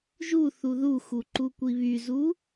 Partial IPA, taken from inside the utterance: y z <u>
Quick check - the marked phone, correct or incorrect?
correct